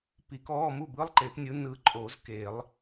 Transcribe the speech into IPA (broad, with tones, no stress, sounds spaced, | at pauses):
p i˨˩˦ k ɔː˧˥˧ m u˥˩ b ɯ˧˥˧ lˠ ǃ e˨˩˦ p nʲ ɯ˨˥ n ɯ˨ ǃʼ oː˨˩˦ z k eː˨˩˦ lˠ